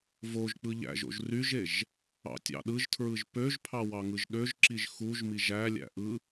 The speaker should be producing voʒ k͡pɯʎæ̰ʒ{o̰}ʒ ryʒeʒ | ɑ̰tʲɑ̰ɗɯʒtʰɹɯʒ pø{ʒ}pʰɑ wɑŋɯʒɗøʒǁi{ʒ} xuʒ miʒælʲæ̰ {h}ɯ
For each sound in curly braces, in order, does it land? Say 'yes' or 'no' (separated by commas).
yes, yes, yes, no